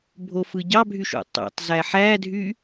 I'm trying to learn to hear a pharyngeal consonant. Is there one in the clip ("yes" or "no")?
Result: yes